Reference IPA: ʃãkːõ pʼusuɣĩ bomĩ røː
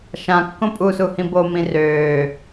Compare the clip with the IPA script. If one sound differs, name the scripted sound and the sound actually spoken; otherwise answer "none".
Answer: ɣ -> h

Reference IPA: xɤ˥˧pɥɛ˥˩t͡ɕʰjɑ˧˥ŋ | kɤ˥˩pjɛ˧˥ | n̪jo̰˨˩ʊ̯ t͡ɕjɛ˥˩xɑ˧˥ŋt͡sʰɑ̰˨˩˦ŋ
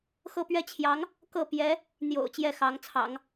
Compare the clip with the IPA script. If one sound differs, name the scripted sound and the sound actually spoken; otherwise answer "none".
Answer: none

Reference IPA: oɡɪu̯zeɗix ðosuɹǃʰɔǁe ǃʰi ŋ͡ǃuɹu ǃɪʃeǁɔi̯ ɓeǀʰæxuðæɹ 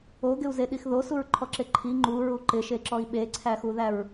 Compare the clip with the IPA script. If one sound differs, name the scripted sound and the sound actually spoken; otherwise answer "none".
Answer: none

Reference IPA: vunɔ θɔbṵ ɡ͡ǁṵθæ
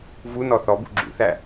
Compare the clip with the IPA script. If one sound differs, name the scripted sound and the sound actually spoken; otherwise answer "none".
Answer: none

